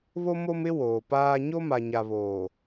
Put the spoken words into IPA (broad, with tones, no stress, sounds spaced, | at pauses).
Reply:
β o˦ m o˦ m ɪ˦ w oː˨ p aː˦ ɲ o˦ m a˨ ɲ a˨ β oː˨